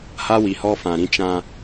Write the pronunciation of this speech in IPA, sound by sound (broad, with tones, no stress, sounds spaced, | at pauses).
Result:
h a˦ w i˨ h ɔ˦ f ã˨ ɾ ĩ˦ t͡ʃ ã˦